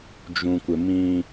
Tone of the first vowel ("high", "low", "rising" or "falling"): low